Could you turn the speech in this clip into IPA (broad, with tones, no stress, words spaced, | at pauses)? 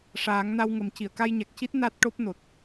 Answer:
ʂaː˨˩˦ŋ na˧wŋə˨˩m ci˨˩˨ə̯ka˧jɲa˨˩k̚ci˦˥t̚ na˦˥t̚ʈo˦˥p̚ no˨˩t̚